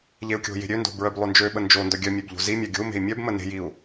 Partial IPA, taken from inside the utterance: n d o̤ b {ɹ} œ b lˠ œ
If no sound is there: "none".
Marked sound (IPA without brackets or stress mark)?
ɹ